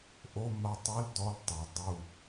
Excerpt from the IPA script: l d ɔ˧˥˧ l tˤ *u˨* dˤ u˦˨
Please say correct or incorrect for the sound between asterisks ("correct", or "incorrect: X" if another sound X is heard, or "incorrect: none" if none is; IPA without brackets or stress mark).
incorrect: ø˨